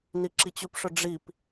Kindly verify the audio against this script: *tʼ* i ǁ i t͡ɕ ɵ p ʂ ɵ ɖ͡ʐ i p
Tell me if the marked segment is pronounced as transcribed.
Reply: no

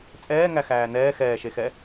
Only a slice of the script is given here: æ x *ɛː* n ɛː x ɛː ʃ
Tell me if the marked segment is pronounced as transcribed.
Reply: no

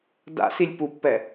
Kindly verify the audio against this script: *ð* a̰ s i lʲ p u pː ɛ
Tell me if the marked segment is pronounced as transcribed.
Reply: no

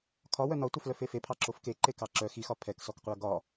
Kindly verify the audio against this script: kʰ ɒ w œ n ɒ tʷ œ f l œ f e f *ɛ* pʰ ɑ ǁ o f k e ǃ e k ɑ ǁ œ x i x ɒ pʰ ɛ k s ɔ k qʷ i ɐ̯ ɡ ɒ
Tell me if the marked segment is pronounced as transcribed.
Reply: no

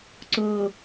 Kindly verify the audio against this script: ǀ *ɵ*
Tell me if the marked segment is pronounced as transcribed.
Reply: no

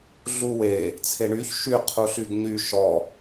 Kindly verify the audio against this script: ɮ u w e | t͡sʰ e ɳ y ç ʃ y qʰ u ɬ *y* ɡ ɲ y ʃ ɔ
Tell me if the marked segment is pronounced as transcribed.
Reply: yes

